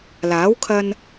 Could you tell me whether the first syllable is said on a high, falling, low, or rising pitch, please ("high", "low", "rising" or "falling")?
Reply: rising